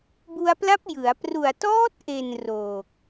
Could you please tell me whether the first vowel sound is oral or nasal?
oral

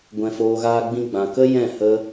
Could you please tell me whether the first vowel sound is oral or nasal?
nasal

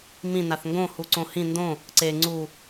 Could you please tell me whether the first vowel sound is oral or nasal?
nasal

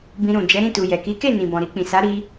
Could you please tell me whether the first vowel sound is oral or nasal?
nasal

